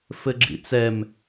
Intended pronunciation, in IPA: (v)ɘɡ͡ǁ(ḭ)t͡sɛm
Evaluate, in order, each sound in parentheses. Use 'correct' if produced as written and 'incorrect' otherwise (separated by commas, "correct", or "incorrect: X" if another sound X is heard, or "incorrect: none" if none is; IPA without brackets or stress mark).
incorrect: f, correct